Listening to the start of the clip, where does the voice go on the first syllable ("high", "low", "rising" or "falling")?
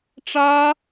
high